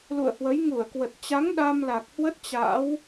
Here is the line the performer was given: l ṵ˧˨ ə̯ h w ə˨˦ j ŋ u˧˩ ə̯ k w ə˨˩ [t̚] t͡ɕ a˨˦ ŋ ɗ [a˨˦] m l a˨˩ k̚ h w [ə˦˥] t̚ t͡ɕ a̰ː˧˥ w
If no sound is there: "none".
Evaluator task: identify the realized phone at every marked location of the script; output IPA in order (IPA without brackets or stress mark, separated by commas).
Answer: t̚, a˧, ə˦˥